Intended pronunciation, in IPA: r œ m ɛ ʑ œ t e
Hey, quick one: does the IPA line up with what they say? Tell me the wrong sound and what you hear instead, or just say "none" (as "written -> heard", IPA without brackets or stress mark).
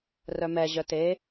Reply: none